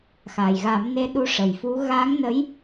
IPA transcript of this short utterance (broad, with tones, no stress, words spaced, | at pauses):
xa˨˩jɣa˨˩˦mne˧˥ ɗu˧˥ʂə˨˩jfu˧˥ ɣa˧˥ŋnə˧˥j